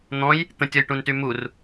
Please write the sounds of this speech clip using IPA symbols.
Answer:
n̪ ɔ̃ j | t̪ ə̃ tʲ ɔ j ʈ ũ n t y m u r

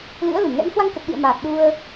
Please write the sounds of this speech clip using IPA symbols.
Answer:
l ɨ̰˧˥ ə̯ l ɨ˧˩ m ŋ ɛ̰˧˥ n h w a˧ ŋ k ə˨˩ t̚ ɗ ḭ˧˨ ə̯ m aː˨˩ t̚ ɗ u˧ ə̯

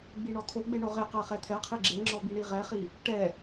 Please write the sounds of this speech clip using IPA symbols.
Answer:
ɡ͡b i ɳ ɔ t̪ʰ o ɡ͡b e ɳ o ʁ e q ɜ χ ɛ t̪ʰ ɛ qʰ i ɡ͡ǁ e ŋ͡ǁ ɔ b i ɳ i ʁ ɛ χ i | ʈ ɛ

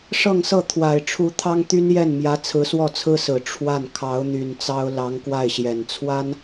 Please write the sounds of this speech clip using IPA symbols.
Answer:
ʂ ɤ˥˧ ŋ s ɤ˥˩ t̪ʰ w a˨˩ ɪ̯ ʈ͡ʂʰ u˧˥ t̪ʰ ɑ˥ ŋ t̪ y˥ n j ɛ˥˩ n m j ä˧˥ t͡sʰ ɹ̩˧˥ s w ɔ˥˩ t͡sʰ ɹ̩˥ s ɹ̩˨˩ ʈ͡ʂʰ w a˥˩ n kʰ ɑ˧˥ ʊ̯ n̪ y˨˩ n t͡s ɑ˥ ʊ̯ l ɑ˧˥ ŋ k w a˥˩ ɪ̯ ɕ j ɛ˨˩ n t͡sʰ w a˥ n

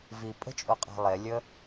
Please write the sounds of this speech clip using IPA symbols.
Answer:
v i pʼ ə̤ t͡ʃʼ o qʼ a̤ lˠ e lʲ ə

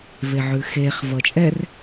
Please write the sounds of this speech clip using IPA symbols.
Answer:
v e ʕ ʉ x e χ v ʌ t͡ʃʼ ɛ r

